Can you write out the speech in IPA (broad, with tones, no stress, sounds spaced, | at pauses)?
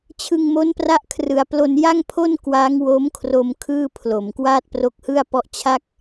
t͡ɕʰ ɯ˧ ŋ m o˦˥ n p r a˦˥ ʔ kʰ r ɯ˩˦ a̯ p l o˧ n j a˥˩ ŋ pʰ o˥˩ n k w a˦˥ ŋ w o˦˥ m kʰ r o˧ m kʰ ɯː˥˩ pʰ l o˨˩ m k w aː˥˩ t̚ p r o˦˥ k̚ h ɯ˥˩ a̯ p ɔ˦˥ ʔ t͡ɕʰ a˥˩ k̚